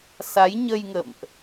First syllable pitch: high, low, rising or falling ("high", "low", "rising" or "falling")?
rising